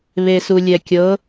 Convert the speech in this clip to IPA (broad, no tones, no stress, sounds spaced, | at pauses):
β e s u lʲ ɛ kʲ ɤ